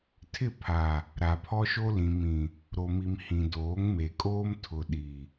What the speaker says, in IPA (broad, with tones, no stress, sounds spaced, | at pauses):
tʰ ɪ˦˨ pʰ a˨ | ɾ a˨ pʰ ɔ˦ ʃ o˦ l ĩ˨ m ĩ˨ | ɾ o˨ m i˨ m h ĩ˨ d oː˨˦ ŋ m e˨ kʼ oː˦ m tʰ ʊ˨ ɗ i˨